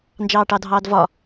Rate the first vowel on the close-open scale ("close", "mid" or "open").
open